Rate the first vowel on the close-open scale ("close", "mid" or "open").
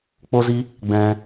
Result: mid